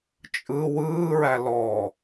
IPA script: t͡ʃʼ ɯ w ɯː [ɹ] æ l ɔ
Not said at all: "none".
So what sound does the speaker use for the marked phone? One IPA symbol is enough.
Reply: ɹ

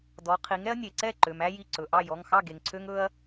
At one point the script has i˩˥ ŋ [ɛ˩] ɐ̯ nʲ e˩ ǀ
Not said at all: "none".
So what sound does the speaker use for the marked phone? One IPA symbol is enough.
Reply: ɛ˦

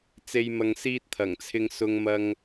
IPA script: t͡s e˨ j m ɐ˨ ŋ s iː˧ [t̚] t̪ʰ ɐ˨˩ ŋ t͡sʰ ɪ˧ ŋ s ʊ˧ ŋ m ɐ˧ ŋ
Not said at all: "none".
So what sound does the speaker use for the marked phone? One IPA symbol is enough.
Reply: t̚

